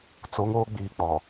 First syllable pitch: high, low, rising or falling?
rising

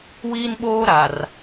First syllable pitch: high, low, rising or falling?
high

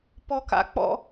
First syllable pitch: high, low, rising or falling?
high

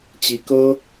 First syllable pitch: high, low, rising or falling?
rising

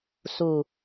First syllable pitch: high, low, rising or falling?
low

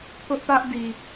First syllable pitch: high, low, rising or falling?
high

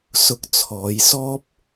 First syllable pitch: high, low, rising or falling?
low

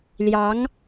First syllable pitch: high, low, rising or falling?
rising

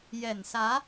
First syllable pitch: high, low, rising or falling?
low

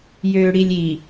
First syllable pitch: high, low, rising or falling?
low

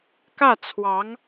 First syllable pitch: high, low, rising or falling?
falling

